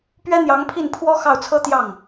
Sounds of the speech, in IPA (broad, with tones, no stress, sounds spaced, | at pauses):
p ɥ ɛ˥ n̪ j ɑ˧˥ ŋ pʰ i˥˩ n pʰ w ɔ˥ x ɑ˥˩ ʊ̯ t͡sʰ ɤ˥ t̪ j ɑ˥˩ ŋ